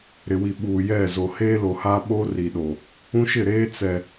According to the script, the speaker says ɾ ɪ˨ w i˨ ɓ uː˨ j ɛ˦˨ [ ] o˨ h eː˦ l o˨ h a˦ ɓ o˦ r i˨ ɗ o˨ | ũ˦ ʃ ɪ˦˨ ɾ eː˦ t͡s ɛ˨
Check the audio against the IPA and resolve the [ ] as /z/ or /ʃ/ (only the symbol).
z